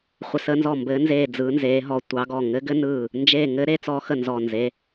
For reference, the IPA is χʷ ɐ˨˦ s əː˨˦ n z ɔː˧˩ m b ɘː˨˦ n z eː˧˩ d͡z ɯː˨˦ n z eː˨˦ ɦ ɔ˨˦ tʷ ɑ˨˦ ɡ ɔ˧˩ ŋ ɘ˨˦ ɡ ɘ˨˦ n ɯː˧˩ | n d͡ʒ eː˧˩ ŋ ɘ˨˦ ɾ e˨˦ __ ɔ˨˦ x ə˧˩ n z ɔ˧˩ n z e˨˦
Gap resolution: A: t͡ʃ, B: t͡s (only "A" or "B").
B